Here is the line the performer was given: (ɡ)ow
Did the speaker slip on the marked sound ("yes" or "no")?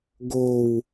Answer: no